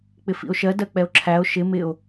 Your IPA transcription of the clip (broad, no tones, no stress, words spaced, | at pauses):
k͡pɪfḭo̯ʃɜ dɜk͡pɛo̯ǁʰæo̯ ʃɪ mɪo̯